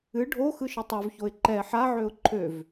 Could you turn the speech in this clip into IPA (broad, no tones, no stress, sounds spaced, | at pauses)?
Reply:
ɨ ɖʱ o x ɯ ʃ ɨ tˤ ø v ç o ɪ̯ ǃ ɛ ħ a ʕ ø ʊ̯ ǃʰ ø v